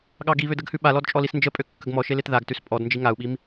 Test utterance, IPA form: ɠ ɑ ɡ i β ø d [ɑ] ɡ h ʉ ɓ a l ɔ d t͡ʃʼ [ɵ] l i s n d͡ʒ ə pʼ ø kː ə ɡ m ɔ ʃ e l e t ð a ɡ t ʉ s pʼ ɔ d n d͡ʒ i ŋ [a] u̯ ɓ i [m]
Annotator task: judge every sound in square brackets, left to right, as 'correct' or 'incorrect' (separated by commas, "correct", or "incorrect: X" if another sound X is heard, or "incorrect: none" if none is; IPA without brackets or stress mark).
incorrect: ə, incorrect: ɔ, correct, correct